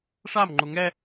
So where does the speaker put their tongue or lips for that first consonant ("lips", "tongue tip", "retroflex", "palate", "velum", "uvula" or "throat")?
retroflex